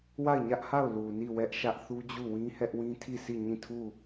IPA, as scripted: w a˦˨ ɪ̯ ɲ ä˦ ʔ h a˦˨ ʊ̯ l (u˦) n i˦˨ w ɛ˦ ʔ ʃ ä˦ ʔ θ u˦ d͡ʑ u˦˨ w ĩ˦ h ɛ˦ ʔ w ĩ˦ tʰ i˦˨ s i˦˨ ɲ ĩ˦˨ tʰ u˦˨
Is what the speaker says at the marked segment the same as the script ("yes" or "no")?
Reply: no